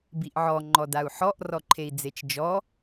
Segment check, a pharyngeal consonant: present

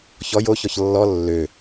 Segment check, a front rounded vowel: present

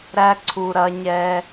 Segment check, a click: present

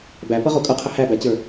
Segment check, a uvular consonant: present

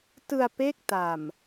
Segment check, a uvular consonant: absent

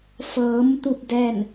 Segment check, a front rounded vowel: absent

